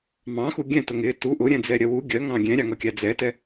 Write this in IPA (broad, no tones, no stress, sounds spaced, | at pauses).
m ɑ̃ x u ɡʲ ɛ̃ t ʊ ŋ ɪ t u ʔ ʊ ɾʲ ɛ̃ d͡z ɛ ɾʲ ɜ w u ɡʲ ɜ ŋ ɑ̃ ɡʲ ɛ̃ ɾʲ ɑ ŋ ʌ kʲ æ d͡z ɛ t ɛ